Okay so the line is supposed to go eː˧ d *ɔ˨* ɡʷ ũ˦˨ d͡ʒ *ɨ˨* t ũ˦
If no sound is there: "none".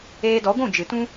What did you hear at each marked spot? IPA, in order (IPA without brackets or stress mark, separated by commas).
ɔ˨˦, ɨ˨